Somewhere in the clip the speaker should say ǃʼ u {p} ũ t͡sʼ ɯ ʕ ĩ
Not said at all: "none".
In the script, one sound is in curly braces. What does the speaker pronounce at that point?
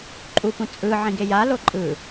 p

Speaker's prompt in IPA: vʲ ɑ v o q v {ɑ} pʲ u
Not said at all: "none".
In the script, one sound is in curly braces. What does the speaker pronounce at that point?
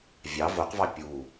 ɑ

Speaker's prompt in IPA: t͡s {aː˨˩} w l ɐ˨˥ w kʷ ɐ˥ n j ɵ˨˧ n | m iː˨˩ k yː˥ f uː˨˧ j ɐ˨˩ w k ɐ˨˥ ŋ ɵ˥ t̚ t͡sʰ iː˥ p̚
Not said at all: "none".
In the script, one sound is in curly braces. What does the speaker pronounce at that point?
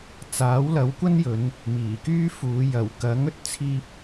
aː˨˥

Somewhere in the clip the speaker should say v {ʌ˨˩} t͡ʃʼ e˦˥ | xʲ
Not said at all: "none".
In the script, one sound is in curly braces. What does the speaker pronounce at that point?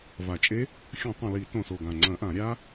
a˨˩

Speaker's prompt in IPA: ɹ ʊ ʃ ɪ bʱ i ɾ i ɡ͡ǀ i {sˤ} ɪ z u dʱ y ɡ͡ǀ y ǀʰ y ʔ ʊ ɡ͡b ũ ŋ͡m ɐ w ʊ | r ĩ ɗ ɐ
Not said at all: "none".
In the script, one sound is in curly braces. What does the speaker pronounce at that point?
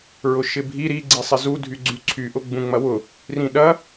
sˤ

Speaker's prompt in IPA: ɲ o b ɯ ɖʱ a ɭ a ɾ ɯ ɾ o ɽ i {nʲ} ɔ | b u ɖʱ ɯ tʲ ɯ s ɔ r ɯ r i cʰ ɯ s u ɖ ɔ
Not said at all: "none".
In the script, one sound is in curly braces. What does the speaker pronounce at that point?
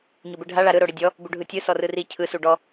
dʲ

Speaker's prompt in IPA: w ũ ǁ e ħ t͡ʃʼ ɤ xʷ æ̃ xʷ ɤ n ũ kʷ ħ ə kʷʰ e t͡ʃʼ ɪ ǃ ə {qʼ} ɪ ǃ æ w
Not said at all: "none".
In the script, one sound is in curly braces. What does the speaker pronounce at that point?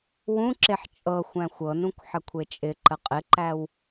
qʼ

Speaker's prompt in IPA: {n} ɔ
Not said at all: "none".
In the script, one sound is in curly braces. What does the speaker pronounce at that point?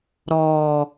ɾ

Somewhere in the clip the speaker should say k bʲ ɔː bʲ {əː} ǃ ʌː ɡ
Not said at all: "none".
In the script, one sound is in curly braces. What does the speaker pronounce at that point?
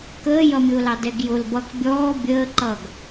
əː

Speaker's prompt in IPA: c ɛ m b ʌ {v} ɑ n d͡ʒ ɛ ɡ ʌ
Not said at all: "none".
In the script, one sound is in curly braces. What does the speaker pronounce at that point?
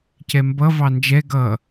v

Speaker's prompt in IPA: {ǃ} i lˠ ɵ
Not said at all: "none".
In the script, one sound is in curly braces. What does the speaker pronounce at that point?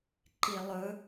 ǃ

